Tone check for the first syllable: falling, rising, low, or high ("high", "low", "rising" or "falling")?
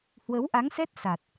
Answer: rising